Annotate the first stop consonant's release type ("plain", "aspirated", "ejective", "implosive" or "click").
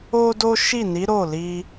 plain